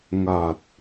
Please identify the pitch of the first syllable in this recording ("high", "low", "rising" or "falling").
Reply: low